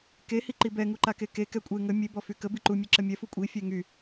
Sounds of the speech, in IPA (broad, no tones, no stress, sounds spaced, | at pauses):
k e h i ǃ i b ɛ ŋ u ǃ a k e k e k ɛ kʷʼ e ŋ ə mʲ e b ɔ f y k ə b i ǃ u mʲ e ǁ ə mʲ ɛ f u kʷʼ i fʲ ɛ ŋ y